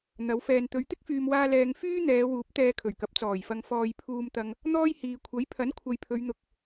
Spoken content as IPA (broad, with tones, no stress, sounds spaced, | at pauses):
n̪ ɐ˨˧ w f ɛː˨ n t̪ ɵ˨˧ ɥ t̪ ɪ˥ k̚ f yː˨ m w aː˧ l ɛː˧ ŋ f yː˥ n̪ ɛː˨˧ w uː˨˥ p̚ t̪ ɛː˧ kʰ ɵ˨˩ ɥ k ɐ˨˥ p̚ t͡s ɔː˨˩ j f ɐ˨ ŋ f ɔː˨ j pʰ uː˧ m t̪ ɐ˧ ŋ | n̪ ɔː˥ j h iː˨ kʷʰ ɐ˨˥ j pʰ ɐ˨˥ n kʷʰ ɐ˨ j pʰ ɵ˨˧ ɥ n̪ ʊ˨ k̚